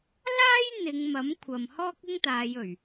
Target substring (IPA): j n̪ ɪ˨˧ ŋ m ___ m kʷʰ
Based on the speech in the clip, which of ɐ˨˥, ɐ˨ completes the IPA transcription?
ɐ˨˥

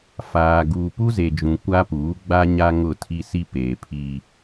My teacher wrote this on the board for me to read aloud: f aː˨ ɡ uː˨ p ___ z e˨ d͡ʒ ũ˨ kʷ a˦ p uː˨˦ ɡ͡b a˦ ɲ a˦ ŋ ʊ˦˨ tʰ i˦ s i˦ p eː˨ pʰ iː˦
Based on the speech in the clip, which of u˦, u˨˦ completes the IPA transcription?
u˦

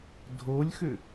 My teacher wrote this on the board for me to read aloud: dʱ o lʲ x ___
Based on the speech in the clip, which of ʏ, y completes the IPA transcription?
ʏ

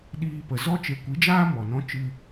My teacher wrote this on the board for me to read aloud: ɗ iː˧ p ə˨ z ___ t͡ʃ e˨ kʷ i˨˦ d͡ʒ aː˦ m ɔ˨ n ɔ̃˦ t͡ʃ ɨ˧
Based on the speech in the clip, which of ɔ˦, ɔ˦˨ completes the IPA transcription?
ɔ˦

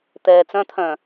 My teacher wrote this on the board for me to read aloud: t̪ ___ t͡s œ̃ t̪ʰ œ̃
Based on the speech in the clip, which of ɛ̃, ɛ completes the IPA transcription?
ɛ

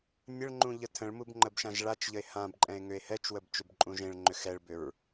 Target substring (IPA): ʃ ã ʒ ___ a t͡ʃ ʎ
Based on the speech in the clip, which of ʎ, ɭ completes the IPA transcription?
ɭ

